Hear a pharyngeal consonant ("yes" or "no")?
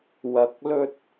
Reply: no